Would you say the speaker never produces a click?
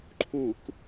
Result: no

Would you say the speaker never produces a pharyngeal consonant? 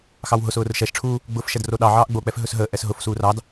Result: no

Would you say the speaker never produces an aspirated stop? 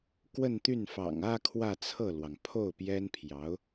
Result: no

